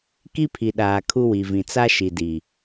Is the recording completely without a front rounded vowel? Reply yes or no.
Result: yes